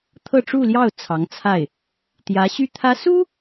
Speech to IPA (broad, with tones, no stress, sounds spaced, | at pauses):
t̪ʰ ɤ˥˧ ʈ͡ʂ u˥˧ l j ɑ˥˩ ʊ̯ t͡sʰ ɑ˧˥ ŋ t͡sʰ a˥˩ ɪ̯ | t̪ j ä˧˥ ɕ y˥ t̪ʰ ä˥ s u˥